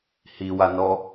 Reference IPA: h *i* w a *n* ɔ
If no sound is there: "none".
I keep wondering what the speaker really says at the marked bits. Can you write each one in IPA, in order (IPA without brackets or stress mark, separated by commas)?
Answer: i, n